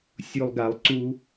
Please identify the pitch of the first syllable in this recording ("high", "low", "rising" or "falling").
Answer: low